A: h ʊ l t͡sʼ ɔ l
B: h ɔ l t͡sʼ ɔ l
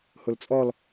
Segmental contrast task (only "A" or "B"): A